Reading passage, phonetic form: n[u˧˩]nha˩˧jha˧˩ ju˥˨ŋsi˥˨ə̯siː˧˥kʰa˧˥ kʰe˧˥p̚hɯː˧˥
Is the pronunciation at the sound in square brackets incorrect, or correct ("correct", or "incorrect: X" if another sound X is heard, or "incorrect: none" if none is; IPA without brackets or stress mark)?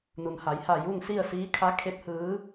incorrect: u˩